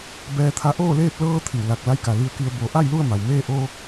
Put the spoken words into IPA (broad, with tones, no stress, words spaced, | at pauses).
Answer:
bɛː˧t̪ʰa˧˥ ʔoː˥˨leː˥˨p̚ lɤː˧ t̪ʰi˧˩wla˧˩k̚ la˧˥jka˩ li˧ə̯ki˧ə̯ bo˩˧ ʔa˥˨jlu˥˨ə̯ ma˩wmeː˥˨ ʔoː˧